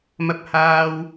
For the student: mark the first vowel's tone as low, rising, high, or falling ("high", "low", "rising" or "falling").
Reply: high